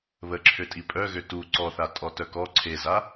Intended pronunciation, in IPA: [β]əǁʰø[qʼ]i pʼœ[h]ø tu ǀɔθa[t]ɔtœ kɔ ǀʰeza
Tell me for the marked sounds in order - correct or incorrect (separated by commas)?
correct, incorrect, incorrect, incorrect